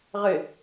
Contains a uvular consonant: yes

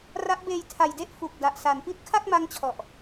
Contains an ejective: no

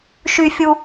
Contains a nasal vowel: no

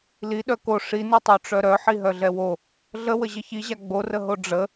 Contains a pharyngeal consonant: yes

